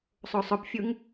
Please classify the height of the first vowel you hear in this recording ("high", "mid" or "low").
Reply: mid